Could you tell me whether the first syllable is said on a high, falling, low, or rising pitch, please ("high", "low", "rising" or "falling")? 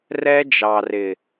high